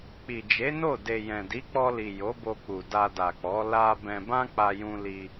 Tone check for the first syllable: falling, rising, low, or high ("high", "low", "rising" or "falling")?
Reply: low